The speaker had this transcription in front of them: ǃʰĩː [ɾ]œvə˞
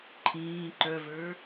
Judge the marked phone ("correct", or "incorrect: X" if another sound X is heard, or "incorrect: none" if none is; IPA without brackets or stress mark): incorrect: ǃ